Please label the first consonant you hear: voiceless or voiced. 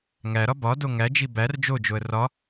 voiced